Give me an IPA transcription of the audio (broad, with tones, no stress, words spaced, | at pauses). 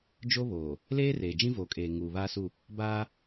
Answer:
d͡ʒo˦βoː˨ | leː˦reː˨ d͡ʒĩ˦voː˨kʼeː˨ ŋuː˨βaː˦su˦˨ | baː˦